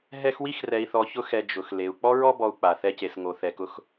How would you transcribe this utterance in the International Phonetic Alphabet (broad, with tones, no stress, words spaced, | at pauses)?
ɦɛ˦xwi˥xrɛ˨i̯θɔ˨ çʊ˥xɛ˨ d͡ʒʊ˩x le˩u̯ k͡pɔ˥ɹɔ˥bɔ˨u̯ k͡pa˩ θɛ˦ce˨sŋo˨ θɛ˨kʊ˦x